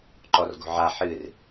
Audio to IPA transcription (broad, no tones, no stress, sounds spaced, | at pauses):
ǃ ɔ r ɡ o̤ ʕ a ħ ɨ r